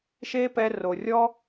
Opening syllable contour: high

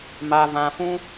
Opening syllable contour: low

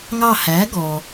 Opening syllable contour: falling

